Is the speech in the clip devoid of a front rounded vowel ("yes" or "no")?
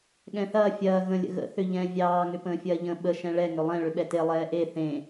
no